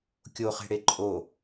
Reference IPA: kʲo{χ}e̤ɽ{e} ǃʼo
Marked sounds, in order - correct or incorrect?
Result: correct, correct

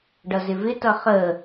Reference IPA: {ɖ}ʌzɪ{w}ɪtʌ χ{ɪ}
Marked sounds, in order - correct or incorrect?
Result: correct, incorrect, incorrect

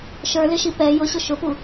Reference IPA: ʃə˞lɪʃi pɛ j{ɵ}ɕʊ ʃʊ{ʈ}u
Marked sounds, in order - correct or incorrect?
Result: incorrect, incorrect

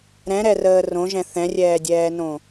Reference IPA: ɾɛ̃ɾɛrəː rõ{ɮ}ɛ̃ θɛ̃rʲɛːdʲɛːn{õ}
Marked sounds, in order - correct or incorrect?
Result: incorrect, correct

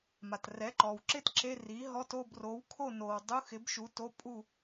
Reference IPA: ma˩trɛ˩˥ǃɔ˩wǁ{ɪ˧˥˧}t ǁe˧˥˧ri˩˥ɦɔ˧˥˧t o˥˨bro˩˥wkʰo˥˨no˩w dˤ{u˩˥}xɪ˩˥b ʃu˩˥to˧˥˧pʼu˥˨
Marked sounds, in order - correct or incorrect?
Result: incorrect, incorrect

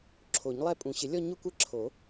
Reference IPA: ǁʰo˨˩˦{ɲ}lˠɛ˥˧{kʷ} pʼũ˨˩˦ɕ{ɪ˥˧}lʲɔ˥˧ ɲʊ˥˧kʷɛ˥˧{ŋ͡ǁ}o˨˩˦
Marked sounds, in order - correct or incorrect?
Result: correct, incorrect, incorrect, incorrect

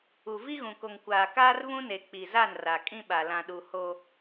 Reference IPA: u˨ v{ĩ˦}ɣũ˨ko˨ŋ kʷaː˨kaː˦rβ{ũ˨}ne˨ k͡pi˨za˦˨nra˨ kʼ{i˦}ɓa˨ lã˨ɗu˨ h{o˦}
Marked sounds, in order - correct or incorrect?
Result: incorrect, incorrect, incorrect, correct

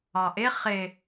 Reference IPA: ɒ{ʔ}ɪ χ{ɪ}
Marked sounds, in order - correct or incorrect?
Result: correct, correct

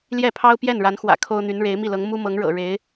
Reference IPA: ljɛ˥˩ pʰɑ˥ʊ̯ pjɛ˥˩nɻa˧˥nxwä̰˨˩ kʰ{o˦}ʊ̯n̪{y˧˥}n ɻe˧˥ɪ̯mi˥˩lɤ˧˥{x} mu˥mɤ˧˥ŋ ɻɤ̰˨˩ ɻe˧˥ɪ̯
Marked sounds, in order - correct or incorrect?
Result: incorrect, correct, incorrect

